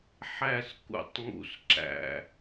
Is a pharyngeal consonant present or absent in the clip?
present